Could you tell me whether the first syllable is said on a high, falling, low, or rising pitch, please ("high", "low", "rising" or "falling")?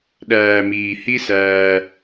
low